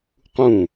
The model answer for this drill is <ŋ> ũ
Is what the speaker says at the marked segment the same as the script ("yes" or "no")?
no